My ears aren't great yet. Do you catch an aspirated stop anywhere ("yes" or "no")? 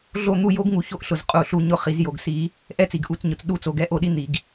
no